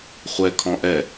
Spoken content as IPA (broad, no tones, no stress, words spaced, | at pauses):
χʷɛkʰɔ̃ ʔɛ